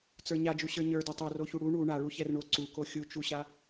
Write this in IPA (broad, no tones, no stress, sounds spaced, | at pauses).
t͡s ə˞ ɲ a d͡ʒ u ɕ ə˞ ɲ ə˞ d ɛ tˤ o r o ç u ɽ u ɳ u ɳ a ɭ u ç ɛ r ɳ o ǀ u k o xʲ u t͡ʃ u ɕ a